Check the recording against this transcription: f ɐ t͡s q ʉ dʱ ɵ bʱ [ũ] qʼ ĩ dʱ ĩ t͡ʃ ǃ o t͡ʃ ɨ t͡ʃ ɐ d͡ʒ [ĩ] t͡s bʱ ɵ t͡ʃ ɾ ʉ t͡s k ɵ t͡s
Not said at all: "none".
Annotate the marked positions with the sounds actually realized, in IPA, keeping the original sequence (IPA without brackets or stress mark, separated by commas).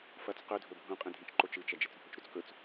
ũ, i